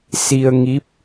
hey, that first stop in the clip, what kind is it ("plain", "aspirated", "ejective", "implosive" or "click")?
plain